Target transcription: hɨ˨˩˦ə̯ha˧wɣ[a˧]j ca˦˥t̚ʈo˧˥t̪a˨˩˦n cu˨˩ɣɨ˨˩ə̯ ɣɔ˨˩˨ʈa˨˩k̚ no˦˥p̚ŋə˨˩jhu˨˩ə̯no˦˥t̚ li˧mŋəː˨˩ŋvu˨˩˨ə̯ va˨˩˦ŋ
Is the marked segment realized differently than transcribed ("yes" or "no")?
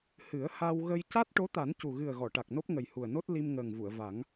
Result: yes